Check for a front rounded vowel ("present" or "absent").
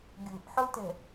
absent